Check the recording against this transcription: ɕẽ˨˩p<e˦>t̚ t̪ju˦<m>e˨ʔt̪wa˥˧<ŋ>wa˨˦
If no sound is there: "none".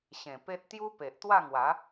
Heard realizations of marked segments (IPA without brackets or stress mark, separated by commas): e˦, p, ŋ